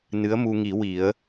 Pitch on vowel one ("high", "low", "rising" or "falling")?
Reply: rising